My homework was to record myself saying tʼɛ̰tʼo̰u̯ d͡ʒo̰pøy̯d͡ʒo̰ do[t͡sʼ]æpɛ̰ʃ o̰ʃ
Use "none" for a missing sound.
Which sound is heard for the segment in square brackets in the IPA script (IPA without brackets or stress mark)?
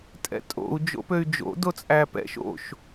t͡sʼ